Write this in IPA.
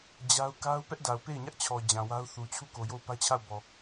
d͡ʑ a˦ ʊ̯ k a˦ ʊ̯ p ɛ˦ ʔ d a˨ ʊ̯ p e˦˨ ɪ̯ ɲ ä˦ ʔ t͡ɕʰ ɔ˨ d͡ʑ ã˨ w a˦ ʊ̯ θ u˨ t͡ɕʰ u˦˨ k o˨ j o˦˨ ʊ̯ p ä˦ t͡ɕʰ a˦˨ ʊ̯ b ɔ˨

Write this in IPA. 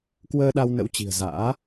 k w əː˧ ɗ a˧ w n ə̰˧˥ w t͡ɕ i̤˨˩ ə̯ z a̰ː˧˥

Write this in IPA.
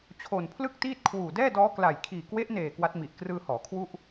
t͡ɕʰ o˨˩ n pʰ l ɯ˥˩ k̚ t iː˥˩ t̚ kʰ w uː˨˩ d ɛː˥˩ d ɔː˦˥ k l a˨˩ j kʰ iː˨˩ k w e˦˥ ʔ n eː˨˩ k w a˦˥ t̚ m i˨˩ ʔ k r ɯː˧ h ɔː˩˦ kʰ w u˥˩ ʔ

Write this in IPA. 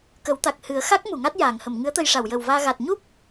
k ə˨˩˦ w t̪ a˨˩ k̚ h ɨ˨˩˦ ə̯ x a˦˥ k̚ m u˨˩˨ ŋ a˦˥ t̚ j aː˨˩˨ ŋ h ə˨˩˨ m ŋ ɨ˧˥ ə̯ t̪ ə˧ j ʂ a˨˩˨ w j ə˨˩ w v aː˧ ɣ a˨˩ t̚ ɲ u˦˥ p̚

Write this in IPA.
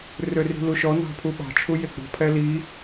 r ø r i̤ l u ʃ ɔ n ɑ̤ pʰ u ɓ ɑ̤ t͡ʃʰ u j e ɡ͡b ɔ̤ pʰ ɛ l i

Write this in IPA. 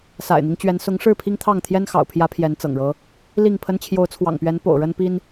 s a̰˨˩ ɪ̯ n̪ i˦ ŋ t͡ɕ ɥ ɛ˨˦ n s ʊ˨˦ ŋ ʂ ɻ̩˥˨ pʰ i˦ ŋ t̪ʰ ɑ˥˨ ŋ t̪ʰ j ɛ˦ n x ɑ̰˨˩ ʊ̯ pʰ j ä˨˦ pʰ j ɛ˨˦ n t͡s ɤ̰˨˩ ŋ ɻ ɤ˦ | l i˥˨ ŋ pʰ ə˦ n t͡ɕʰ j o˨˦ ʊ̯ t͡sʰ w ɑ̰˨˩ ŋ p ɥ ɛ˨˦ n p o̰˨˩ ʊ̯ ɻ ə˦ n p i˦ n

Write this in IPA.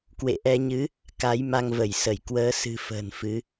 k w ḛ˧˨ ʔ ɛ˧ ɲ ɨ˨˦ | k a˨˦ j m a˧ ŋ v ə˧˩ j s ə˧˩ j k w əː˨˦ s ɨ̤˨˩ f ə̤ː˨˩ n f ɨ˨˦

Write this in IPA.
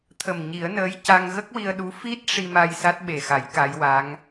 t̪ʰ ə˨˩ m ɲ i˨˩˦ ə̯ n əː˧˥ j c a˧ ŋ ɣ ə˦˥ k̚ w i˧ ə̯ ɗ u˧˥ f i˦˥ t̚ ʂ i˧ m a˧ j s a˦˥ t̚ ɓ e˨˩ x a˨˩˦ j k a˧˥ j w a˧˥ ŋ

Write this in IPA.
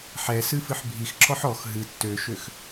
ħ ɛ s ɨ f ɨ ħ bʱ i x ǁ ɔ ħ ɔ x ɦ ɨ tː ø ʃ ø x

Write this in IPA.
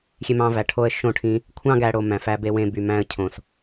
xʲ e˧ m ɑ̃˧ v æ˨ ʈʰ o˧ ə̯ ʃ õ˦˨ ʈʰ ĩ˧ | kʷʰ ɑ̃˦ ɡ æ˦ ɽ o˧ m æ̃˨ f æ˧ b e˦ w ẽ˦ b y˨ m æ̃˦ ə̯ cʰ õ˨ s

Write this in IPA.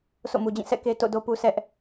sʰ o̰˦˨ m u˨ d͡ʑ ĩ˦˨ sʰ ɛ̰˦˨ k e˦ t o̰˦˨ d o˦ p u˦ sʰ ɛ˦ ʔ

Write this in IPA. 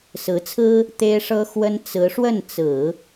s ɹ̩˧˥ t͡sʰ ɹ̩˥ | t̪ e˥ ɪ̯ ʂ ɤ˥ x w ə˥ n t͡s ɹ̩˧˥ ʂ w ə˥˩ n t͡s ɹ̩˨˩˦

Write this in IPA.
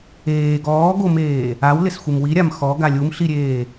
eː ɡ ɔː ɡ o m eː | a w l ɪ s xʷ ɪ m w i ɾʲ a m x ɔ ɡ a lʲ u m ɬ i ɾʲ eː

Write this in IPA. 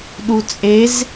ɗ u t͡sʼ e z

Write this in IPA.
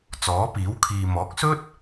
t͡s ɔː˨˥ p iː˨˥ w kʰ iː˨ m ɔː˨˥ k̚ s ɵ˥ t̚

